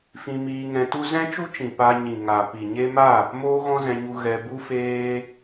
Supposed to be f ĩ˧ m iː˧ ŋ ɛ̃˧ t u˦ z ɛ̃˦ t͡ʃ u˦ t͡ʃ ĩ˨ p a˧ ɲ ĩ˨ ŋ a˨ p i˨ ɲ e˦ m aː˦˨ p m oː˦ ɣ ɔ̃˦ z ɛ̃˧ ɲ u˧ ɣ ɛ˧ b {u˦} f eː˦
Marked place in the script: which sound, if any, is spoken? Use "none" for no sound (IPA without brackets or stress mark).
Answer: u˦